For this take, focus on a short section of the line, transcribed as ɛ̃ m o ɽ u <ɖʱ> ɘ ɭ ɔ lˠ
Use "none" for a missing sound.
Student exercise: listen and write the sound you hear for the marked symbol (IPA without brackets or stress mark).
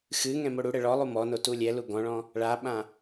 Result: ɽ